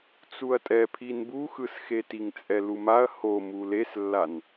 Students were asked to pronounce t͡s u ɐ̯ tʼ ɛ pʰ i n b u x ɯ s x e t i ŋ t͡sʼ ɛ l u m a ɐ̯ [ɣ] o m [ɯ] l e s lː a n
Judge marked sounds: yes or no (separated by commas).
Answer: no, no